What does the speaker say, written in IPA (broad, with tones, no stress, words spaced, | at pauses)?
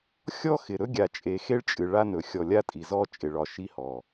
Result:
xʲɔ˦xɪ˨ ɾɵ˦ɡʲa˨t͡ʃʼe˨xe˦ɭ t͡ʃʼɨ˨ ɭa˦ nɵ˨xʲɔ˨lʲa˦ tʼi˨zɔ˦ t͡ʃʼɪ˨ɭɒ˨ʃi˦hɔ˨